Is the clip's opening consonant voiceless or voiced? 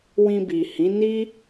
voiced